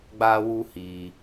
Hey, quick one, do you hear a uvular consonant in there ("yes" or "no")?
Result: no